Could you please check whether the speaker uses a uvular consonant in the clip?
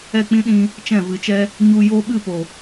no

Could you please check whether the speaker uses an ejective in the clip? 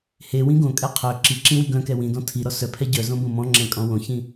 yes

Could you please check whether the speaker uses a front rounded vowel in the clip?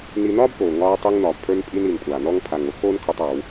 no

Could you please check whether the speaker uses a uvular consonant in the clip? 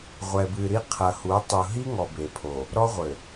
yes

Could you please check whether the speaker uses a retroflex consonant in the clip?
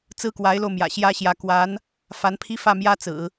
no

